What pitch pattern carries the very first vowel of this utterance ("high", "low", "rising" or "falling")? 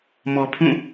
low